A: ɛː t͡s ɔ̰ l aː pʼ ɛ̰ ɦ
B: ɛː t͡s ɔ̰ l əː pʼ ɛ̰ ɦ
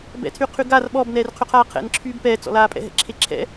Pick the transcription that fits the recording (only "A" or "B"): A